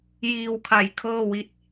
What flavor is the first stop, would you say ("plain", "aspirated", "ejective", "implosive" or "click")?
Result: aspirated